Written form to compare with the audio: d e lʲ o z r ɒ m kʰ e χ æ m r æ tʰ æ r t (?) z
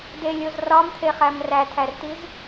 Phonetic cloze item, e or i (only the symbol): i